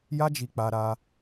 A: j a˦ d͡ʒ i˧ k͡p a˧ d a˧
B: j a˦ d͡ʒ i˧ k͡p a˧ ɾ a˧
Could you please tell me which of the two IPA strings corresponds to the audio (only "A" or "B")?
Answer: B